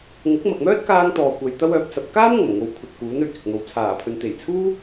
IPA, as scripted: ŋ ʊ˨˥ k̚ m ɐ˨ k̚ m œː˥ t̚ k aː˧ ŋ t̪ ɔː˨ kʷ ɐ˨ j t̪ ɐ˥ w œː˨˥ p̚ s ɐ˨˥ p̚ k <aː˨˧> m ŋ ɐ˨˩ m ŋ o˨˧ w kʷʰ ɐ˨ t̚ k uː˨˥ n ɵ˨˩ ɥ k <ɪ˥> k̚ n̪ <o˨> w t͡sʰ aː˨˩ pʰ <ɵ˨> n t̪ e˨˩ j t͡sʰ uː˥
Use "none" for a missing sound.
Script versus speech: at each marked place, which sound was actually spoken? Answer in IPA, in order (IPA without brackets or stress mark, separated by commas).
aː˥, ɪ˨, o˨, ɵ˨